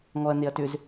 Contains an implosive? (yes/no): no